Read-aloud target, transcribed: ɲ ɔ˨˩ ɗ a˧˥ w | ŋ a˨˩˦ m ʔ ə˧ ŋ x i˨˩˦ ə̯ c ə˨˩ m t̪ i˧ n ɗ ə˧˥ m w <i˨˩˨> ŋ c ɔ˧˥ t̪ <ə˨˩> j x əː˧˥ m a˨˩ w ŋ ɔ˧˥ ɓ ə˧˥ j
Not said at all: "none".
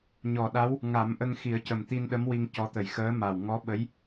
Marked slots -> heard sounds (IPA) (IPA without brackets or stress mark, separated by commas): i˧, ə˨˩